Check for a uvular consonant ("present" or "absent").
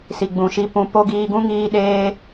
absent